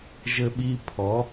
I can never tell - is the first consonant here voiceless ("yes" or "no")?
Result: no